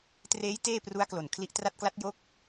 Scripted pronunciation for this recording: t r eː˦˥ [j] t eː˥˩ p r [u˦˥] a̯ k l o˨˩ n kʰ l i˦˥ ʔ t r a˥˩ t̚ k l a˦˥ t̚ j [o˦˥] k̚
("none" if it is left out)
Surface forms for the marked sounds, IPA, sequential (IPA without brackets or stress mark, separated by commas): j, u˦˥, o˦˥